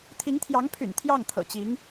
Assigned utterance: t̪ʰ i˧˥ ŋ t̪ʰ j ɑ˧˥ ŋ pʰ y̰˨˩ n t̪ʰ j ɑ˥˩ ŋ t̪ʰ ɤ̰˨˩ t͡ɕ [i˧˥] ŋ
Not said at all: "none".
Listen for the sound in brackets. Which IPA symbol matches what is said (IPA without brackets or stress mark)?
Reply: i˧˥